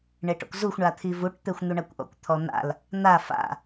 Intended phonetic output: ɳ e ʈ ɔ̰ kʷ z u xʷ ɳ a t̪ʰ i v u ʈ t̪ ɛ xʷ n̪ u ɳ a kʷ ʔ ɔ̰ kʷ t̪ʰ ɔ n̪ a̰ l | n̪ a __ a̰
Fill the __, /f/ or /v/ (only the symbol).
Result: f